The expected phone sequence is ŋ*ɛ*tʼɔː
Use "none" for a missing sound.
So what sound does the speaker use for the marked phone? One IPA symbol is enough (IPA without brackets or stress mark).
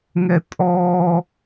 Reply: ɛ